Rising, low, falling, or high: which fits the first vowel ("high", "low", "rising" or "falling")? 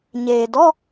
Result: low